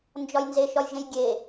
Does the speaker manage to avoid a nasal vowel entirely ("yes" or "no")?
no